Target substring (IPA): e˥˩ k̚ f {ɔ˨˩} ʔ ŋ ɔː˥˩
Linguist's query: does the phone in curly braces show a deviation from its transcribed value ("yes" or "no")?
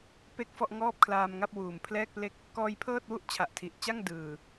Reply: yes